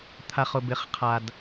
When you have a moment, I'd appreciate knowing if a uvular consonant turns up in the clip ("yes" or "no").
yes